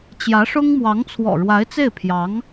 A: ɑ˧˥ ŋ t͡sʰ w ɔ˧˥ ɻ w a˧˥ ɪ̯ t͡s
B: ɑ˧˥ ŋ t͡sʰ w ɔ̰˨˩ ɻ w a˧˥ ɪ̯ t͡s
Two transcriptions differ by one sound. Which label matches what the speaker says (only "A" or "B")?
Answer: B